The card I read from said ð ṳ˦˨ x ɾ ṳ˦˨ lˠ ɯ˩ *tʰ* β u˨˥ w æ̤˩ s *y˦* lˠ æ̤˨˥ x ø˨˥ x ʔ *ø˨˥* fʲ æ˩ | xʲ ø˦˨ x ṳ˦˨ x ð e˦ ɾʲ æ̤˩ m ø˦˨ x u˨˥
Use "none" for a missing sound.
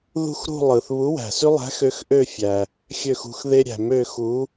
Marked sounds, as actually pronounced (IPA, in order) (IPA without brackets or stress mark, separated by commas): θ, y˦, ø˦˨